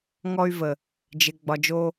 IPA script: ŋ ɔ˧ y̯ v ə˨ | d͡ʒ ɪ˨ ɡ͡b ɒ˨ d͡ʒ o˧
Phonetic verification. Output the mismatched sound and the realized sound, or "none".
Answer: none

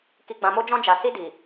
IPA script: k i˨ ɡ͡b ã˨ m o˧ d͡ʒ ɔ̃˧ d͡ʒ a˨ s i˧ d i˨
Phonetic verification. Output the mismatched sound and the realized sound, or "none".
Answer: none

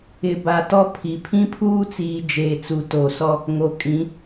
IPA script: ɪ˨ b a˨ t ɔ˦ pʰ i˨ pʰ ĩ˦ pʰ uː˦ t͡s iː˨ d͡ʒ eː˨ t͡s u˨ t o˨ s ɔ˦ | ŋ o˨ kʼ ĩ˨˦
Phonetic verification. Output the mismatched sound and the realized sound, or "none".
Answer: none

